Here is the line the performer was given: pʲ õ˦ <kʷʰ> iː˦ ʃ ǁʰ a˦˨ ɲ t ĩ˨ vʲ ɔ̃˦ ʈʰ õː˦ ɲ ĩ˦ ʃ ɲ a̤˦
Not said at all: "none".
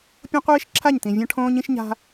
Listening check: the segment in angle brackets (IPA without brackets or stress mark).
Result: qʷ